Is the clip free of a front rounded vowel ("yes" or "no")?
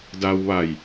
yes